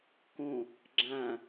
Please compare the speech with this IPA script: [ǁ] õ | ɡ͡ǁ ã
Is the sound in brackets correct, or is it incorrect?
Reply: incorrect: k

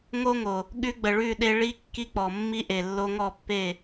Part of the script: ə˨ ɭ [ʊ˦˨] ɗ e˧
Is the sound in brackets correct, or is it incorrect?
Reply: incorrect: ʉ˦˨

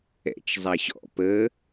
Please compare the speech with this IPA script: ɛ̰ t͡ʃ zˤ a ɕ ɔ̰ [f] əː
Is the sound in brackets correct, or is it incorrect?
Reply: incorrect: p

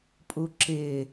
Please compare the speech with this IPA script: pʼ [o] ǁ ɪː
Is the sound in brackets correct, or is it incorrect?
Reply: incorrect: u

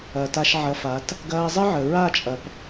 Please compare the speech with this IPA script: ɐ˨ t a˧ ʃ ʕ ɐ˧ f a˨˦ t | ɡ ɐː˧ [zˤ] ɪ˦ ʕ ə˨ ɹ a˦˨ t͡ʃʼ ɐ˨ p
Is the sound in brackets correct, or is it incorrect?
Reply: correct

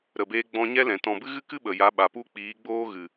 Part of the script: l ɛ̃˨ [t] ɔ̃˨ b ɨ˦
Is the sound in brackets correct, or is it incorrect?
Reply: correct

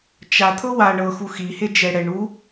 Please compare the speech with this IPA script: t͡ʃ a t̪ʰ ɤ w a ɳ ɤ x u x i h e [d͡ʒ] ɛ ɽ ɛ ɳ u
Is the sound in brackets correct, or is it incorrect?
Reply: correct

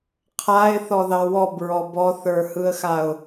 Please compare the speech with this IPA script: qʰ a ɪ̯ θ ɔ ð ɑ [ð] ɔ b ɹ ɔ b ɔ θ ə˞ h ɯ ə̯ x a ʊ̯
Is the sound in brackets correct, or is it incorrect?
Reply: incorrect: w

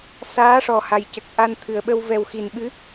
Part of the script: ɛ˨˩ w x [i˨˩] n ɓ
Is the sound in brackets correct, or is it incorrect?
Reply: correct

